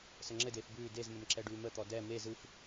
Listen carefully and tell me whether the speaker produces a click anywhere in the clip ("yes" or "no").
yes